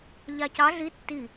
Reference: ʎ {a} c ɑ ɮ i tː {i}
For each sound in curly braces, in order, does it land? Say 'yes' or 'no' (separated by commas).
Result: yes, yes